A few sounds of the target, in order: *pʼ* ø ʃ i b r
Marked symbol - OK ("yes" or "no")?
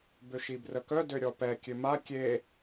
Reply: no